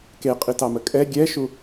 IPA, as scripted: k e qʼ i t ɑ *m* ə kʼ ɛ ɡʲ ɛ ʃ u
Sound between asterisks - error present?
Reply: no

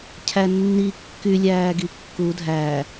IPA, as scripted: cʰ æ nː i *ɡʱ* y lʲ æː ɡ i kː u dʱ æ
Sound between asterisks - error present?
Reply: yes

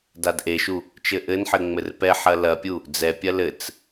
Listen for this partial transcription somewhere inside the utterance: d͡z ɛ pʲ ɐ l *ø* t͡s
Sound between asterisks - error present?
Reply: yes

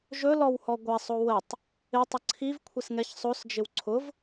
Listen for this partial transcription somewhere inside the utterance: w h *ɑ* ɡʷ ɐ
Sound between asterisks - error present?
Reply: yes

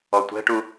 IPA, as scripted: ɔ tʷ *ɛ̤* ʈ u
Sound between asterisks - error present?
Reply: no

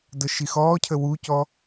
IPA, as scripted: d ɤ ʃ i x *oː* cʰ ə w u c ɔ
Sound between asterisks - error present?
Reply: yes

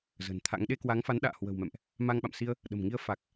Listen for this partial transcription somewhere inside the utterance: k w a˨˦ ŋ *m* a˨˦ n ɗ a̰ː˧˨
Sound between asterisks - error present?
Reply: yes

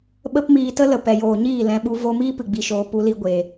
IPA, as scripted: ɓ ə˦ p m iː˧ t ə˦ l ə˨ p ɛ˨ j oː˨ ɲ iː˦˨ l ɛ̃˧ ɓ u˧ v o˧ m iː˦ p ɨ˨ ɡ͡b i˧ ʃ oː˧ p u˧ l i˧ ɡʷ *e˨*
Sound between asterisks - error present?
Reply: no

